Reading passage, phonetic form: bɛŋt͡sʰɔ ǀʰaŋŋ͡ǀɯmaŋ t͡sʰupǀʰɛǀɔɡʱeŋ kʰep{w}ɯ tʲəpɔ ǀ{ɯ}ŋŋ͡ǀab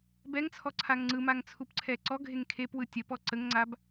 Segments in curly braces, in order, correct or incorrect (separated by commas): correct, incorrect